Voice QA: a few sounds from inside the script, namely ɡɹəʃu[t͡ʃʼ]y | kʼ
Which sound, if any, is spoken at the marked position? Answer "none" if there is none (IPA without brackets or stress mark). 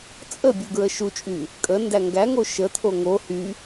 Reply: t͡ʃʼ